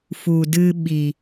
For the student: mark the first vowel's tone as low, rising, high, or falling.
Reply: low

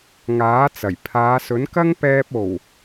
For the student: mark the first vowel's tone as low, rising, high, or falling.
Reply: rising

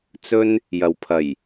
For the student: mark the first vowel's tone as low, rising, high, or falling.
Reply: high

